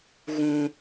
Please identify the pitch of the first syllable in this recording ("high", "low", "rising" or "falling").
low